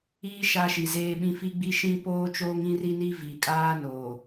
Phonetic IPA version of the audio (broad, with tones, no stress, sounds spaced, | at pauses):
iː˦ ʃ a˦ ʃ i˨ z eː˦ ɓ ĩ˦ f i˦ ɡ͡b i˦ ʃ ĩ˦ p oː˦ t͡ʃ oː˦ ŋ ĩ˦ r i˦ n i˦ v i˨ kʼ aː˦ n oː˨